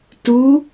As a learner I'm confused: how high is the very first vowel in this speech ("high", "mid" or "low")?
high